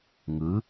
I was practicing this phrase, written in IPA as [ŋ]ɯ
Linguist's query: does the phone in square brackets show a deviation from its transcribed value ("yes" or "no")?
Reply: no